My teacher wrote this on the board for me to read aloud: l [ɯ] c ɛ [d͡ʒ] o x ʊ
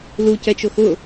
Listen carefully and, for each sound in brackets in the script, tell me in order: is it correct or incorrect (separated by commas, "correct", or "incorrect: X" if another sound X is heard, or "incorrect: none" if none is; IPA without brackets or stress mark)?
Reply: incorrect: u, incorrect: t͡ʃ